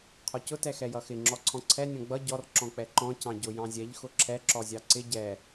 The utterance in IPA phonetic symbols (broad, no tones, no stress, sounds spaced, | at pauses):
qʰ ɔ c ʊ t ɛ x ɛ j ʌ x ɪ ŋ͡ǁ ɔ ǀʰ ɔ̃ ǀʰ ɛ nʲ ɔ̃ ɡ͡b ʌ ɟ ɔ r ǁ ɔ̃ k͡p ɛ ǃ ɔ̃ c ɑ̃ ɟ ʊ j ɑ̃ zʲ ɛ ʎ x ʊ ǁʰ ɛ ǁ ɔ zʲ ɑ ǀ ɪ ɟ ɛ